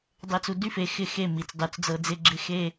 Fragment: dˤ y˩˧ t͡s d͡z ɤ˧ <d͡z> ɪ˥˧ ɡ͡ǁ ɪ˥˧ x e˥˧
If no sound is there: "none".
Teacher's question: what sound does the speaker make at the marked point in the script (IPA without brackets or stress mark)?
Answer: d͡z